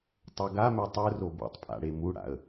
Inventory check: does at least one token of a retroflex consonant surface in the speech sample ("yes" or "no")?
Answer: yes